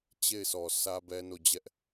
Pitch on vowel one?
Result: falling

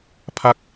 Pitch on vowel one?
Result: falling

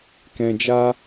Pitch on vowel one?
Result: low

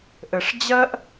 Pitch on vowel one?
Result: low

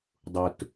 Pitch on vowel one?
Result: low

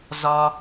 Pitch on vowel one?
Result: high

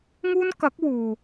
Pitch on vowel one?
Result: high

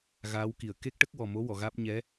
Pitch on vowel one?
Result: rising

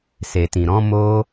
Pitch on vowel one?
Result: low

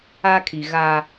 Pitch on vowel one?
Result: high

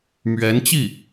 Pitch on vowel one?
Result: rising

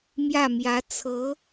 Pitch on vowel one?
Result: falling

